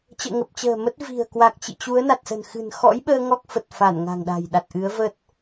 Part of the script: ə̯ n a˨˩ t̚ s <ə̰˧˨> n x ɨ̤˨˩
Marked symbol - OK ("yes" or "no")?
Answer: no